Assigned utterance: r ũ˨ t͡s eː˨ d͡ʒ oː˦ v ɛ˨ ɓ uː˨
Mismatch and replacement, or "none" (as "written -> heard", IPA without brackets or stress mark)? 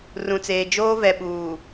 none